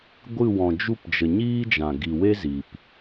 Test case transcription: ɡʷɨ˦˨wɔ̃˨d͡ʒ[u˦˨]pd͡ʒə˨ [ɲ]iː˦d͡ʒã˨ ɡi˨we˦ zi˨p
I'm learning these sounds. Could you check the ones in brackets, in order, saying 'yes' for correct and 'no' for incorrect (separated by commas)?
yes, yes